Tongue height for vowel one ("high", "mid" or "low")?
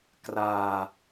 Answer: low